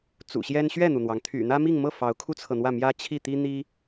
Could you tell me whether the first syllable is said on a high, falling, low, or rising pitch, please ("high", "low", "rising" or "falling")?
low